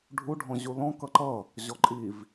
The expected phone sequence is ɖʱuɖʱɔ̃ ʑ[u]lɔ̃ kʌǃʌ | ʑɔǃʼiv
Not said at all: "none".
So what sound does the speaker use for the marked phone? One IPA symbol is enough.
u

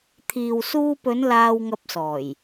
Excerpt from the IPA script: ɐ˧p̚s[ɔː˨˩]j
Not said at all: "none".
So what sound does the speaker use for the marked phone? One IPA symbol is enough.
ɔː˨˩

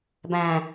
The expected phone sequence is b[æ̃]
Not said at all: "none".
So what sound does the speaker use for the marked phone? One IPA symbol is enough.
æ̃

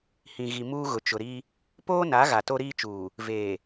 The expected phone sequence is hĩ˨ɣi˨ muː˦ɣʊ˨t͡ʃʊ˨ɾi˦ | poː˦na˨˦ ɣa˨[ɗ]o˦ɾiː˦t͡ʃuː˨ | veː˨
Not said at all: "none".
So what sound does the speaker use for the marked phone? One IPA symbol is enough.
t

